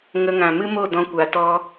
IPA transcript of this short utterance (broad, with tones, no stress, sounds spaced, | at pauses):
ŋ ə˧ ŋ ã˨ m ɨ˦ m o˦˨ d ɔ̃˧ kʷ a˨ t ɔ˧